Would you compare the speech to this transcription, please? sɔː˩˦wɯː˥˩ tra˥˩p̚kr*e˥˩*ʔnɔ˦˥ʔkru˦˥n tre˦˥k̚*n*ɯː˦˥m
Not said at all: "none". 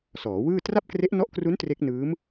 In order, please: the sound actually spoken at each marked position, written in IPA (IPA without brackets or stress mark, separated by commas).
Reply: e˦˥, n